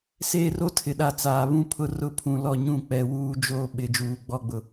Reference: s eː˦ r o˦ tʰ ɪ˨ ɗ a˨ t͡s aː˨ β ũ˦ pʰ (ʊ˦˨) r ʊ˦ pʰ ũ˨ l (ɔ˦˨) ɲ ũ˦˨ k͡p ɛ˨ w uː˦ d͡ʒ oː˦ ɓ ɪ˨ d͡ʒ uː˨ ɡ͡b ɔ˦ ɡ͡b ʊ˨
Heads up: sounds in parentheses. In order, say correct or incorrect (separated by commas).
correct, correct